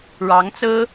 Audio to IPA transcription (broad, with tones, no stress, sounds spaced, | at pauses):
ɻ ɑ˧˥ ŋ t͡s ɹ̩˥